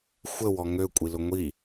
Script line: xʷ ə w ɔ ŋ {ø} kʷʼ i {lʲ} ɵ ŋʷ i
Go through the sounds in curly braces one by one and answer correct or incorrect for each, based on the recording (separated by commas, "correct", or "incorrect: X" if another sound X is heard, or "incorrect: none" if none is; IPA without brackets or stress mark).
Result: correct, incorrect: l